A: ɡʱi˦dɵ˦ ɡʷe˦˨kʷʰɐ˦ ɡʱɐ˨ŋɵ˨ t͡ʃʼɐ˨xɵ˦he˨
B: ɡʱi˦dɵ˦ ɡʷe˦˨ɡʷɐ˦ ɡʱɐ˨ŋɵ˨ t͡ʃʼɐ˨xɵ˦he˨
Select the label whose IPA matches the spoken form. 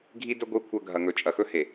A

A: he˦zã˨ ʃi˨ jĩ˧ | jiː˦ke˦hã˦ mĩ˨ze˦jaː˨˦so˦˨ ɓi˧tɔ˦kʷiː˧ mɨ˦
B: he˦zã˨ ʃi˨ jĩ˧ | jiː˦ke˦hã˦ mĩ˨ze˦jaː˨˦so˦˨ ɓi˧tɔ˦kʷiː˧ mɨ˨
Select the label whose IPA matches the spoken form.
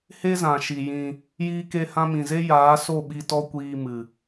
B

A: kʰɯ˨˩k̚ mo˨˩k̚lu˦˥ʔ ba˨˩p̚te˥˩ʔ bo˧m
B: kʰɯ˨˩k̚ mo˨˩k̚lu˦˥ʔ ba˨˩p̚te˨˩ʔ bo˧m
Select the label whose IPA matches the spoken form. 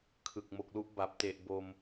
B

